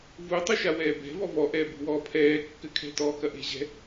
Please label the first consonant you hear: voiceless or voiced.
voiced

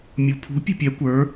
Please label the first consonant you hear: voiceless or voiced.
voiced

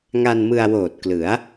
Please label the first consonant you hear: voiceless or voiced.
voiced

